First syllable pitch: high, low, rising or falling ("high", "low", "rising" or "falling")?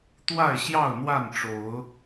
falling